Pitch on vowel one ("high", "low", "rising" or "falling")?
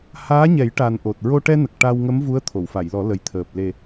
rising